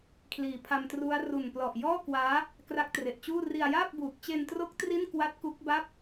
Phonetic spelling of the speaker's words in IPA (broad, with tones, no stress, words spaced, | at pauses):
kʰliː˨˩pʰa˧mtru˦˥a̯ ru˨˩n plɔ˨˩ʔjɔː˥˩kwaː˦˥ | kra˦˥k̚tre˨˩ʔt͡ɕuː˥˩ ri˧a̯jaː˥˩p̚buː˨˩k̚ t͡ɕe˧ntro˦˥k̚ tri˥˩nkwa˦˥t̚ ku˦˥k̚ba˥˩p̚